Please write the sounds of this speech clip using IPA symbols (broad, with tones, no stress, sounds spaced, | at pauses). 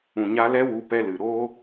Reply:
ũ˨ ɲ a˧ l ɛ˦ w u˧ p ɛ˧ l ɨ˨ ɾ oː˦